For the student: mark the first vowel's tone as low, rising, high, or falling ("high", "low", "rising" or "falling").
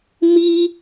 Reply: high